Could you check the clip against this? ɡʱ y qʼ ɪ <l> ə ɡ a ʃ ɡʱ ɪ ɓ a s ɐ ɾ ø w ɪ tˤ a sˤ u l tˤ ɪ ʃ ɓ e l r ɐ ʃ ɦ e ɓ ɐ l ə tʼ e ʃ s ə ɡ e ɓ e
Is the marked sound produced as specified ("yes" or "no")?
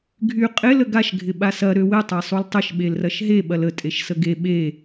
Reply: yes